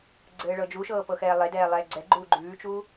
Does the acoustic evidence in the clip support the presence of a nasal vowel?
no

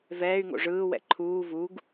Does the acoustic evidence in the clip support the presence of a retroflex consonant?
yes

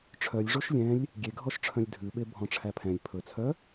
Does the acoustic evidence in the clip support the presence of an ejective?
no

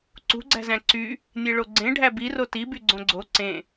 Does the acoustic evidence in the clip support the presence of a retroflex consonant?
yes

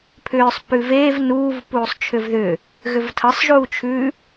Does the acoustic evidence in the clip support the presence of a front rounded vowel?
yes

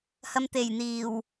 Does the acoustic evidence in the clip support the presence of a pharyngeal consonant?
no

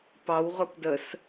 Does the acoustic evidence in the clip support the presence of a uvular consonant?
yes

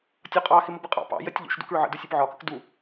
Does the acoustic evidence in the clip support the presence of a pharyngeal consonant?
yes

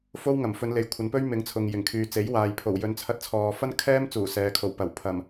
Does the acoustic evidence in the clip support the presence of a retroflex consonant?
no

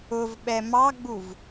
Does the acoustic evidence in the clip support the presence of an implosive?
yes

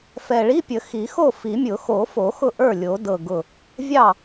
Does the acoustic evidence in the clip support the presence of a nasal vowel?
no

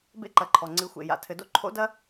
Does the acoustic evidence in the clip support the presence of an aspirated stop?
yes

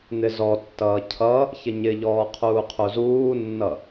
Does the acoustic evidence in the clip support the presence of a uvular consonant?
yes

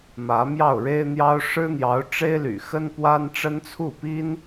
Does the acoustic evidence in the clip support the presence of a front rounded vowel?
yes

